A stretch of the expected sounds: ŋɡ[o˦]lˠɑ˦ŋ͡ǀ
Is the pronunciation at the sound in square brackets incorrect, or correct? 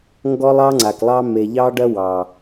incorrect: ɔ˦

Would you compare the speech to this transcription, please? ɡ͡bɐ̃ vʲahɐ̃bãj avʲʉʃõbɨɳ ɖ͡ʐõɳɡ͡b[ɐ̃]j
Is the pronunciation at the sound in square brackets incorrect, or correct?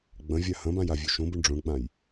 incorrect: ã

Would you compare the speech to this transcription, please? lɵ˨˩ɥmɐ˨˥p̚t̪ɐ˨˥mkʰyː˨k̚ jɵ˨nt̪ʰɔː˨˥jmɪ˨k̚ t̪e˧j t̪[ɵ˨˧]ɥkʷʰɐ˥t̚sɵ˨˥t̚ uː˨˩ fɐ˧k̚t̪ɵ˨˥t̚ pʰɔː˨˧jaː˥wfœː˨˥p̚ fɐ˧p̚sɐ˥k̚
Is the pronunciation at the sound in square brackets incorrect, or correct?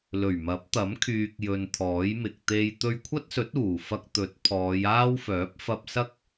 incorrect: ɵ˧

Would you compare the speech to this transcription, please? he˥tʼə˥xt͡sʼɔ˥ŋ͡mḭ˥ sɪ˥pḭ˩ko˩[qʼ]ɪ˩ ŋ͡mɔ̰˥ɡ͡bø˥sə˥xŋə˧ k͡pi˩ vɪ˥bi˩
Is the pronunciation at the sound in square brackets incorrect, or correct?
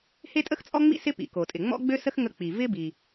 incorrect: tʼ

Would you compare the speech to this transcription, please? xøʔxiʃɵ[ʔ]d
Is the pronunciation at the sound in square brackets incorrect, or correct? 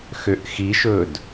incorrect: none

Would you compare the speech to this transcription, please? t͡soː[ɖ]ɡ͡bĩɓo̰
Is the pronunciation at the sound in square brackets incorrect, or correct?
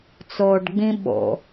correct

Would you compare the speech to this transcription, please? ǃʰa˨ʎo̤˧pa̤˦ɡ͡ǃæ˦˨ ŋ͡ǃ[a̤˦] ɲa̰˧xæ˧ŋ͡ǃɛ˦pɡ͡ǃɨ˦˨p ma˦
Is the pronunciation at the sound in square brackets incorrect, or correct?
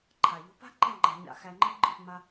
incorrect: a̤˧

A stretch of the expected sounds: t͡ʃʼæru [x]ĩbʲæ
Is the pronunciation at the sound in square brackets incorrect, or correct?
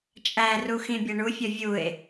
correct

